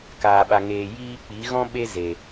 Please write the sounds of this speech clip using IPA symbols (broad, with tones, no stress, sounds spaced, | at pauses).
k aː˨ ɓ a˨ ŋ eː˨ j iː˧ k͡p i˨˦ ɣ ɔ̃˦ ɓ e˦ z e˨